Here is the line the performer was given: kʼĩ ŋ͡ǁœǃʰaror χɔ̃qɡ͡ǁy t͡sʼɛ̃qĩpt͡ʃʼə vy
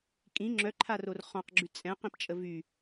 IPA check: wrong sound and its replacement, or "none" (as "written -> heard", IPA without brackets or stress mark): none